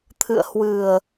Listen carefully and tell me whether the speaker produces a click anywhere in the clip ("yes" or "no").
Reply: no